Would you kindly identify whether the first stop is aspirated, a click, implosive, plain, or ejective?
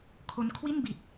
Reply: aspirated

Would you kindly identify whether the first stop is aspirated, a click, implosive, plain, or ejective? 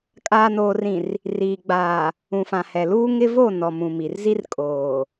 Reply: ejective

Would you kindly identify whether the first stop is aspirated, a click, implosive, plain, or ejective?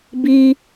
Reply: plain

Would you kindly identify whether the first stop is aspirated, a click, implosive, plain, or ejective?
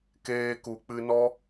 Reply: plain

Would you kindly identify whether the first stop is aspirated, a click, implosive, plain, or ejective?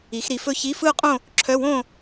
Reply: ejective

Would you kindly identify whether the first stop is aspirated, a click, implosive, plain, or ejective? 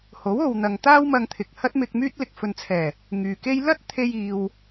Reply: plain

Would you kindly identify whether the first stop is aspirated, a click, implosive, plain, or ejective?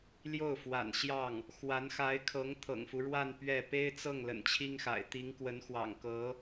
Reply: aspirated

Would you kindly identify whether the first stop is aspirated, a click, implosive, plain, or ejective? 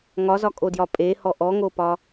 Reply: ejective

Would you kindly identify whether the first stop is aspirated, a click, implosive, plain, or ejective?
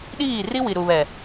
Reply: implosive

